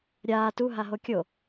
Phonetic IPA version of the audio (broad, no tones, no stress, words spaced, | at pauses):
ɾʲaː tu ɦaɦokʲo